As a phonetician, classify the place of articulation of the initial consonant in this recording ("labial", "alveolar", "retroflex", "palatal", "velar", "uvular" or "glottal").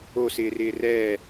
alveolar